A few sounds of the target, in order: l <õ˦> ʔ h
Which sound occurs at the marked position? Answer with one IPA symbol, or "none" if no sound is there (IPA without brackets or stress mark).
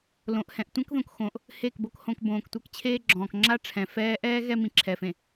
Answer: õ˨